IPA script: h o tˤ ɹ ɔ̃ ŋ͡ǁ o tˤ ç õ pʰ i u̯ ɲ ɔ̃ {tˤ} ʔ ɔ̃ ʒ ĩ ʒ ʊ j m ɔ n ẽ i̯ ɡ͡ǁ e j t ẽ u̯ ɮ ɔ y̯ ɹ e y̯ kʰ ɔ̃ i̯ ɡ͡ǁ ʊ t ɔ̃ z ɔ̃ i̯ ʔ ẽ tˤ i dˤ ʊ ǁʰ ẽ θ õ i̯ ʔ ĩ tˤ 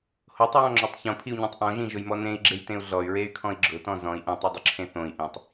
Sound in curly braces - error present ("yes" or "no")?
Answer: no